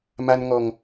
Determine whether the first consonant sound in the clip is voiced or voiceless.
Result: voiced